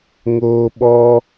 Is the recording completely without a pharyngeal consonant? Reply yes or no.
yes